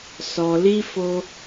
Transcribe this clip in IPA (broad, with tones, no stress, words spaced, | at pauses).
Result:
sɔ˧li˦ fo˦